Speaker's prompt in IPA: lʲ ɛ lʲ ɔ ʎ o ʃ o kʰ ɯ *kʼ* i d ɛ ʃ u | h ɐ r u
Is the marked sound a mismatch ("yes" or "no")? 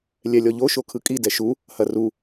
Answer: no